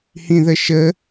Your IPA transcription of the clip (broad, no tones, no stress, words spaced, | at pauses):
hĩðəʃə